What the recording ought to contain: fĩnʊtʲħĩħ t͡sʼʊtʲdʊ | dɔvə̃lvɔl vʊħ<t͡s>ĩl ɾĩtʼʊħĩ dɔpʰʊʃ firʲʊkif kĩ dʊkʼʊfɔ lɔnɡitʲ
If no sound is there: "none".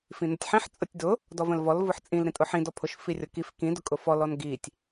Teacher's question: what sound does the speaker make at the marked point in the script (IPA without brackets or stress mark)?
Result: t͡sʼ